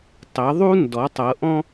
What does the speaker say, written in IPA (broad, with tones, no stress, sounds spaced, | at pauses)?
tˤ e˩˥ ðˤ u˥ n d ɔ˩˥ tˤ ɤ˩˥ ʔ ɔ̃˥